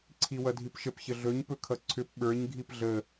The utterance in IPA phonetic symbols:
ǀʰ i w ʌ dʱ i p ʃ ə p ç ə ɮ ɵ ɲ p ɵ kʰ ʌ ǀʰ ʏ p ɓ ə˞ ɲ ɡʱ i p ɮ ə

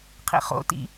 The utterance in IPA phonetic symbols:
qʰ ḭ χ o̰ t ḭ

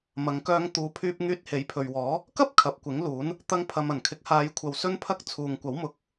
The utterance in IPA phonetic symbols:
m ɐ˨˧ ŋ k œː˧ ŋ t̪ uː˨˧ pʰ yː˧ p̚ ŋ yː˧ t̚ h e˨˥ j pʰ ɵ˨ ɥ w ɔː˨˥ | k ɐ˥ p̚ kʰ ɐ˨ p̚ kʷ ɪ˨˥ ŋ l uː˨˥ n | t̪ ɐ˧ ŋ pʰ ɐ˨ m ɐ˨˩ n kʰ ɪ˨˥ k̚ h aː˨˧ j kʷʰ ɐ˧ w s ɵ˥ n pʰ ɐ˥ k̚ t͡sʰ uː˨ ŋ kʷ ɐ˨˥ w m ʊ˨˥ k̚

